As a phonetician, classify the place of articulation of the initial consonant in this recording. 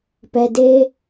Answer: labial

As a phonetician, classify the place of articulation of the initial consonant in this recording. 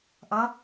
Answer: glottal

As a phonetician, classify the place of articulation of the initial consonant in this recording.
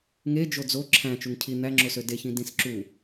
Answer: velar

